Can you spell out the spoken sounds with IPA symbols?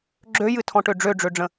ɡ͡ǁ ø j ɨ tʰ ɔ̃ ʈ ø ɖ͡ʐ ø ɖ͡ʐ ø ɖ͡ʐ ə̃

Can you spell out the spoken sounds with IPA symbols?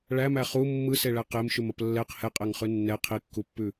ɭ æ m æ χ u mː ɯ s e ɭ æ q e m ʃ ʉ m ɐ p lː ɛ q h ɛ qʼ ɛ ŋ χ ʉ nː ɛ qʰ i kː u pː ʉ

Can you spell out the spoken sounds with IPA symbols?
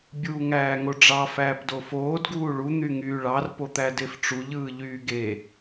bʲ uː ŋ æː ŋ o ɖ͡ʐ ɑ f æː p d o f oː d ɡ uː ɭ u n̪ y ŋ yː ɭ ɑ r p o t̪ æ d e f ʈ͡ʂ u ʎ ɯː ʎ yː ɡ e

